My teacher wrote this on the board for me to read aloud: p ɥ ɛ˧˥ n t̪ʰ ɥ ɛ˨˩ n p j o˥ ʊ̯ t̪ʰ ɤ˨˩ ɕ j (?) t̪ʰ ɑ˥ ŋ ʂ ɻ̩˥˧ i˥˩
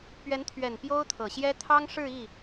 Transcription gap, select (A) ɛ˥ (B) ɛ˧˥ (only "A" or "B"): A